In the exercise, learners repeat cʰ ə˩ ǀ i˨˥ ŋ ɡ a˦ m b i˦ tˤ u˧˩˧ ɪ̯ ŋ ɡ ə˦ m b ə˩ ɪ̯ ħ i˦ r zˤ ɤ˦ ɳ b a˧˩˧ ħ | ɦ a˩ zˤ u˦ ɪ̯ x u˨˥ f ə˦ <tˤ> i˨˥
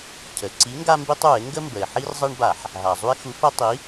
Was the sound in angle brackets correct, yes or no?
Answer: yes